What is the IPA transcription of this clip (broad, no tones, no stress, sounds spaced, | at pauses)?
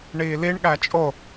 ɳ iː l i ɳ ɠ æ t͡ʃʼ o